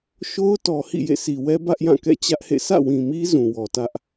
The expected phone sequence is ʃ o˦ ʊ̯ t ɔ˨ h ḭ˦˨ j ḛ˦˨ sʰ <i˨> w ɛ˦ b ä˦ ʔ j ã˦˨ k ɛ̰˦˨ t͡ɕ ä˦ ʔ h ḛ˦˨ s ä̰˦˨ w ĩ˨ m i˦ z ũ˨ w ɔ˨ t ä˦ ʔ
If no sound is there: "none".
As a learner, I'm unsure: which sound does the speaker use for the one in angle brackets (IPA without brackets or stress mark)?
i˨